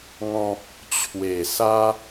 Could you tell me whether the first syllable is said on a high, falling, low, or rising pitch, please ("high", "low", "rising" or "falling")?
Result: low